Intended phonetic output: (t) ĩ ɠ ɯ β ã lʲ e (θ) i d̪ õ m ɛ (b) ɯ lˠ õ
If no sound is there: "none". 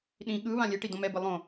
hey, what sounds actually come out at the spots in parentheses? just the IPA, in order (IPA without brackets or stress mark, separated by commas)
ɗ, ʈ, b